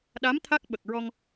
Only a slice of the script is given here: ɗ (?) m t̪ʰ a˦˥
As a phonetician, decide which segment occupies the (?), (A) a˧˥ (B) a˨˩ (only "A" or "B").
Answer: A